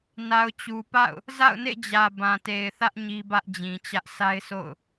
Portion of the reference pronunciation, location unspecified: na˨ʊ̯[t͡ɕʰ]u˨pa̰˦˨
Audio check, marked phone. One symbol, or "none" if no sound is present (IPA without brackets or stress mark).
t͡ɕ